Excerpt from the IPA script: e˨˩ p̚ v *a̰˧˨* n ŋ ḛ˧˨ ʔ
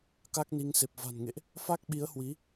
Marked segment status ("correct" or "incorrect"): incorrect